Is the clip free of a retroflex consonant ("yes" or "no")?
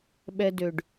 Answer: no